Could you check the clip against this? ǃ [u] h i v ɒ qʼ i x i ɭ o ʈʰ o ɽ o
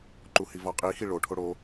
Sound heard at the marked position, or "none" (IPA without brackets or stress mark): u